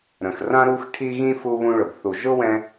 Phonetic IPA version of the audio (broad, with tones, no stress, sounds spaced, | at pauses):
ɾ ə̃˨ x r ã˥ ɾ u˦ x ʈʰ i˦ ɣ ĩ˦ f u˦ β ũ˦ ɭ ʊ˨ b θ u˨ ʒ ʊ˥ w ɛ̃˦